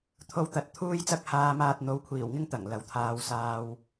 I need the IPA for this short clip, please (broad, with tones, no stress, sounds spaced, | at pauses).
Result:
t̪ʰ o˧ w t̪ ɐ˨ t̚ t̪ʰ uː˥ j t͡s ɐ˥ k̚ h aː˧ m aː˧ t̚ n̪ o˨˥ w kʷʰ iː˨˩ w ŋ ɪ˥ ŋ t̪ ɐ˨˩ ŋ l ɐ˨ w t̪ʰ aː˧ w s aː˧ w